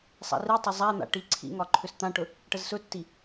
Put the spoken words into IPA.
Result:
sˤ a̰ r i tˤ ɵ zˤ a n̪ a̰ ʈ i ǀʰ ḭ ŋ ɒ ǃʰ ʏ s t̪ ã ʈ ɵ | ʈ ə z s ɵ tː i

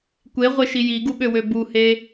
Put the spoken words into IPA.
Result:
kʷ e ʁʷ e ʃ i j i ɡ u ɓ ø w ø b u h e

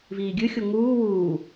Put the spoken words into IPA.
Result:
v iː ɡʲ ɨ xʲ o ŋ uː w uː

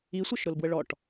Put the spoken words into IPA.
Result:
i sʷ ɤ ʃ ɾ ʊ l b w ə ɭ ɔ ʈ

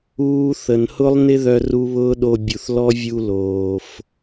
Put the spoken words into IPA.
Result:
uː˦ θ ə˨ n h ʊ˦ lˠ n ɪ˦ ð œ˦ r u˦ β ʊː˦ ɗ o˧ bʲ u˨ θ l ɔ˦ vʲ u˧ l oː˨ f

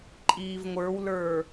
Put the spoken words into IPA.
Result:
ǃʼ iː v ŋʷ ə˞ w l ə˞

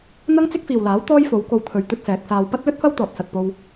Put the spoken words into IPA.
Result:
n̪ ɐ˥ ŋ t͡s ɪ˥ k̚ f iː˨ w l aː˨˥ w t̪ ɔː˥ j f o˨˧ w k o˨ w t̪ʰ ɵ˧ ɥ t̪ ɵ˥ t̚ s ɛː˨˥ k̚ s aː˧ w p ɐ˥ t̚ l ɵ˥ t̚ f ɐ˥ w t̪ ɔː˨ t̚ s ɐ˨ t̚ p o˧ w

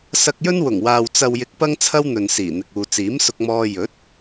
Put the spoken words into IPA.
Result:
s ɐ˧ k̚ j ɵ˥ n w ʊ˨˩ ŋ w aː˨ w t͡s ɐ˨ w j ɪ˨ k̚ p ɐ˥ ŋ t͡sʰ ɐ˥ w n̪ ɵ˨ n s iː˨˩ n̪ ɪ˨ k̚ uː˨ t͡s iː˨˥ m s ʊ˧ k̚ m ɔː˧ j ɵ˨˥ t̚

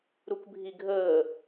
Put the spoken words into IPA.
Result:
ɾ u k bʱ i ɡʱ əː

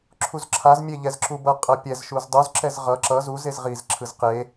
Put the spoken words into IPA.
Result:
ǁʰ u z ǁʰ a z mʲ e ʎ ɛ z ǁ u b ʌ qʼ ʌ pʲ ɛ z ʃ u z dˤ u z ǁ ɛ z ʁ ʌ ǁ ʌ z u z e z ʁ i z ǁʰ ɯ z q e

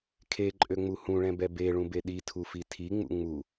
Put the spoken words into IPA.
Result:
kʰ e ǃʼ ø ŋ͡m u h ũ ɭ ɛ̃ b ɛ b e ɭ ũ b e ɗ i tʰ u f i tʰ i ŋ͡m ṵ ŋ͡m u

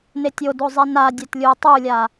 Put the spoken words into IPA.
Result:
n e tʲ o d o zˤ i n a dʲ ɛ t lʲ u tˤ u lʲ a

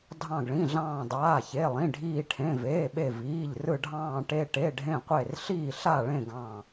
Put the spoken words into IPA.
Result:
dʱ ɑ̃˧˩ ɡ ɭ ĩ˩˧˩ ɮ ɑ̃ː˧˩ dˤ aː˩˧˩ ç e˩˧˩ lˠ ĩ˩˧˩ ɖʱ iː˧˩ ʈʰ ẽ˩˧˩ v eː˩˧˩ ɓ e˧˩ v iː˩˧˩ ʎ r ɯ˧˩ ɖʱ ɑ̃ː˧˩ ʈ e˧˩ ʈ e˩˧˩ ɖʱ ẽ˧˩ qʷ e˧˩ r ɬ iː˧˩ ɬ a˧˩ ɭ ẽ˧˩ ɡ ɑ̃˧˩

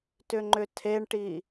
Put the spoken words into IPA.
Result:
t ʏ ŋ͡ǃ ʏ tʰ e ɳ ʈ i

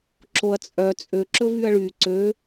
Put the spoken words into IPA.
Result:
ǁ o ɐ̯ t͡sʼ œ t͡sʼ ø ǁ ɵ v y ɐ̯ ɭ y ǀ ø

